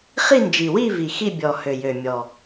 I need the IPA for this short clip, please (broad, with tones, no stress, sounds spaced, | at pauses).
χ i˥˧ n d͡ʒ i˨˩ w i˥˧ v i˨˩ x i˥˧ bʲ ɔ˨˩ h ø˨˩ j ø˨˩ mʲ ɔ˨˩